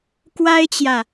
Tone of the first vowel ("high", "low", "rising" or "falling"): high